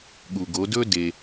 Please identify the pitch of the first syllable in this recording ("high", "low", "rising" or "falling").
low